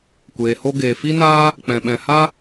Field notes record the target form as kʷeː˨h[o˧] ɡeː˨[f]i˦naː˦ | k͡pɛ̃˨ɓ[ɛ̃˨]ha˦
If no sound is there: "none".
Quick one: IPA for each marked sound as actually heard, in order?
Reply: o˧, f, ɛ̃˨

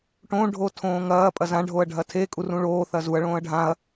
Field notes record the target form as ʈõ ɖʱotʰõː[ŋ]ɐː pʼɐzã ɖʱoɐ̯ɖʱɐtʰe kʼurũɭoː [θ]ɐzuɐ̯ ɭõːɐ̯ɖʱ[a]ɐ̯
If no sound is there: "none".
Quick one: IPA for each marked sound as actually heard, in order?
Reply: ŋ, θ, ã

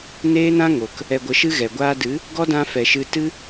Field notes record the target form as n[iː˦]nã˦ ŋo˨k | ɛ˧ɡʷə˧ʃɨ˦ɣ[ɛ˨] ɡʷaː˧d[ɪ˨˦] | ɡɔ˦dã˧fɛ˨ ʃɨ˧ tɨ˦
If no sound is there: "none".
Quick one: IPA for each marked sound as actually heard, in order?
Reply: eː˦, ɛ˨, ɨ˨˦

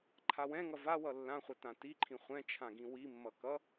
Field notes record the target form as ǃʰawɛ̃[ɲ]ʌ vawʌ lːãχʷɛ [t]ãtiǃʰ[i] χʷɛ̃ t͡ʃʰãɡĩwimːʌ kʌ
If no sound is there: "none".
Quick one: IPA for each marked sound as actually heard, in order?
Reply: ŋ, t, ĩ

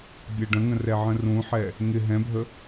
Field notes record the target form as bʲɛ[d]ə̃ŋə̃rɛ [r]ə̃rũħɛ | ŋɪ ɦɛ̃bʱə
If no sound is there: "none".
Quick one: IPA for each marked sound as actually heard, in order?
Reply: ɖ, ʕ

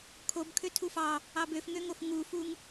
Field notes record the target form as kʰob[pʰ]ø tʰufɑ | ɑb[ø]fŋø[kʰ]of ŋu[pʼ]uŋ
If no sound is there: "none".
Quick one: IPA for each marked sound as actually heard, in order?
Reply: kʰ, ø, ŋ, f

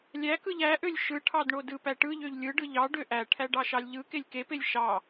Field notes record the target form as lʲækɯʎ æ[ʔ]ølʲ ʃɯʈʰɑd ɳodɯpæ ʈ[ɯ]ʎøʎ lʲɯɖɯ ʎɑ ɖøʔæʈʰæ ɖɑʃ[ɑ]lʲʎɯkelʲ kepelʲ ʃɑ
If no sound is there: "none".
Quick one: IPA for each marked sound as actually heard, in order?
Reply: ʔ, ɯ, ɑ

